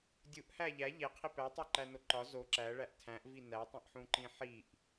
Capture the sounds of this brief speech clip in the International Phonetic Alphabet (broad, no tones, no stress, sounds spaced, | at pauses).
dʲ u ʔ h æ ʎ æ ʎ e qʰ i p æ tˤ o ǃ æ n o ǃ ɒ z o ǁ æ ɭ æ ʔ tʰ æ̃ ʔ v i n æ tˤ ĩ ʔ ħ ũ ǃ ĩ ħ i ʔ